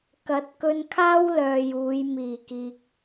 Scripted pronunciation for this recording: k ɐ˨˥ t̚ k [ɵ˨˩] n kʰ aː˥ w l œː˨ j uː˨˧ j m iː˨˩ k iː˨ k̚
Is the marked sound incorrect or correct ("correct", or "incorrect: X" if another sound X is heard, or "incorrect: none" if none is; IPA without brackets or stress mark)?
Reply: incorrect: ɵ˧